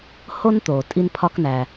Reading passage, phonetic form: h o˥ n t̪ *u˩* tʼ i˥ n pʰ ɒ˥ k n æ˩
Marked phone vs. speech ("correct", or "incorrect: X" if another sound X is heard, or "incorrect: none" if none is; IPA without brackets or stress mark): incorrect: o˩